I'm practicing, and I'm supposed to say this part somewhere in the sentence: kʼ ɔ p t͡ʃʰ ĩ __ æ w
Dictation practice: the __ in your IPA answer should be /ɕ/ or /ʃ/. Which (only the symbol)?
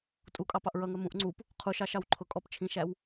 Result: ʃ